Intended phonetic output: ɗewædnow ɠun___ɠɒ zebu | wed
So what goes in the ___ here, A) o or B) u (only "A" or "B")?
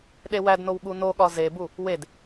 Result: A